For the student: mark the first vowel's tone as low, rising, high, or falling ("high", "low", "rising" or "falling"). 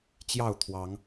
falling